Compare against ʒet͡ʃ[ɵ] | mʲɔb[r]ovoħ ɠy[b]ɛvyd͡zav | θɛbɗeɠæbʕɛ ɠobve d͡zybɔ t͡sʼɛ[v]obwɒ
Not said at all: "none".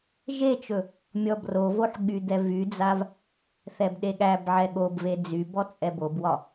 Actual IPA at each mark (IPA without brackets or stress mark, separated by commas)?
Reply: ɵ, r, d̪, b